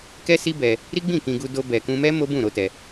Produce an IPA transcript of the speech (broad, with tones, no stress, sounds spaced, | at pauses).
k ɛ˦ s i˦ b ɛ˧ | ɾ i˦ ɡ͡b ĩ˦˨ k ĩ˧ ɡ u˧ d o˧ b ɛ˨ k ũ˧ m ɛ˦ m o˦ b ũ˦˨ ɾ o˨˦ t ɛ˧